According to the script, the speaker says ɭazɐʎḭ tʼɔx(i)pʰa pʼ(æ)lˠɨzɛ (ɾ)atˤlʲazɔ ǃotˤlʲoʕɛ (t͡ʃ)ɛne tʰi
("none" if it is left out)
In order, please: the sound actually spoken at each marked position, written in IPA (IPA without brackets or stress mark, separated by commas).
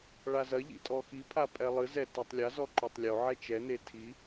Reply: i, ɛ, t, t͡ʃ